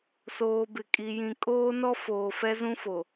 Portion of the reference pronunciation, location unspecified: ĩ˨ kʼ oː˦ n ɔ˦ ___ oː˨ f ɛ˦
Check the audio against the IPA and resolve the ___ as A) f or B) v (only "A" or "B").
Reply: A